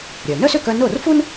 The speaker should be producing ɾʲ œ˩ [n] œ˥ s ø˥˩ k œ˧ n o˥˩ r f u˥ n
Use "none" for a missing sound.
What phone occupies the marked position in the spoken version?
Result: n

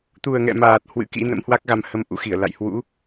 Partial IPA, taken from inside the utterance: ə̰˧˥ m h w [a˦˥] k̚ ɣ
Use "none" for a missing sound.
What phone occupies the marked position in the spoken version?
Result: a˦˥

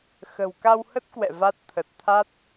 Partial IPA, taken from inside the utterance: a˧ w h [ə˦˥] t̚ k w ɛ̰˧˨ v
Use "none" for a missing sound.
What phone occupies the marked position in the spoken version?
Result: ə˦˥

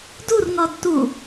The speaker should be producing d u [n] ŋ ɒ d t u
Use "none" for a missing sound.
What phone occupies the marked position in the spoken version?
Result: r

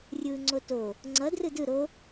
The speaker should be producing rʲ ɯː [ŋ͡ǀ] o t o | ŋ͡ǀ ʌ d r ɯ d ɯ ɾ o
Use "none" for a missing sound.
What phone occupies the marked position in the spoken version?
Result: ŋ͡ǀ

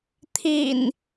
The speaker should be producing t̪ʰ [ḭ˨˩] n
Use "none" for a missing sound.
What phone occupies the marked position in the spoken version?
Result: ḭ˨˩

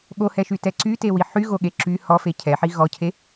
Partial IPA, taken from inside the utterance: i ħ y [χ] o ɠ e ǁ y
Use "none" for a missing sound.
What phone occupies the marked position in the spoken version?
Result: ɣ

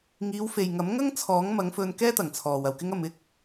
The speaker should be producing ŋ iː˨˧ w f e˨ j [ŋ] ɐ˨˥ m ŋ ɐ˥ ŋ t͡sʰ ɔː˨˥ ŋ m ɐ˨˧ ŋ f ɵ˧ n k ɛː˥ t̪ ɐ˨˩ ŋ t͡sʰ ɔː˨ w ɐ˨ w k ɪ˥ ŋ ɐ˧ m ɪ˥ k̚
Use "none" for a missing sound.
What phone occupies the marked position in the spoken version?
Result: ŋ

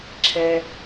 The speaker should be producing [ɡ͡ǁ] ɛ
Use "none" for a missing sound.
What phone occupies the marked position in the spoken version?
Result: ǁʰ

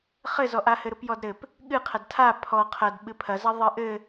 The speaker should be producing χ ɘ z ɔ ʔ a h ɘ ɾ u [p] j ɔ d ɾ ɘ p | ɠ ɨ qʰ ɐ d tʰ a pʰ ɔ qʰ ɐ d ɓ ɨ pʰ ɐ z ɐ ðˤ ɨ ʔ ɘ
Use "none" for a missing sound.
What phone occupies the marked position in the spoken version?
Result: p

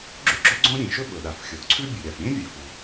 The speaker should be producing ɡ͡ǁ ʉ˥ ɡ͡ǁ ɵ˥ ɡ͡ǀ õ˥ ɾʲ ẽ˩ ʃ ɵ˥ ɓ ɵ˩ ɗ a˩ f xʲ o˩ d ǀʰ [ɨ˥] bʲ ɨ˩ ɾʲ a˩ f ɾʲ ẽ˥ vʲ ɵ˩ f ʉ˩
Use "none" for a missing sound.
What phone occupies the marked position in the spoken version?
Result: ʉ˥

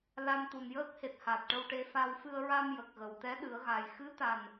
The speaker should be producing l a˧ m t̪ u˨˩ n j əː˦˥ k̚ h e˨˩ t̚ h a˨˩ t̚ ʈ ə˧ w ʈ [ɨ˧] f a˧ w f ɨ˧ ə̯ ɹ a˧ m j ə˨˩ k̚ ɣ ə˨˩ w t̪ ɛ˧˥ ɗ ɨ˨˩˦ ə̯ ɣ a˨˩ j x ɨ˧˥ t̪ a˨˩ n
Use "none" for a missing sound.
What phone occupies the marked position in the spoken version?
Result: e˧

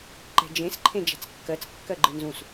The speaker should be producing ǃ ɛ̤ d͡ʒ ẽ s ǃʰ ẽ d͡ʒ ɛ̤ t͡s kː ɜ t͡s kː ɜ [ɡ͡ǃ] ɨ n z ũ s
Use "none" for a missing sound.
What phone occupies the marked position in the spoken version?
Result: ɡ͡ǃ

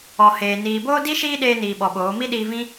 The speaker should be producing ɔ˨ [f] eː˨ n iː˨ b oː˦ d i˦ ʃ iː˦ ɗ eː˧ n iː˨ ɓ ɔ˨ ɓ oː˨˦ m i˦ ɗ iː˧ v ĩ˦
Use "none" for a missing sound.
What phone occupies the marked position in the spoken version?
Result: h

